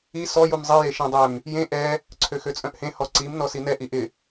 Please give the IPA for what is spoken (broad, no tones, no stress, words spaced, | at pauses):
i sɔ jumzˤi jeʃẽdˤøm | jẽ ʔɛ | ǀʰøxøt͡sʼœ̃ʔhẽ hɔǀim nɔsinɛ ʔiʔɪ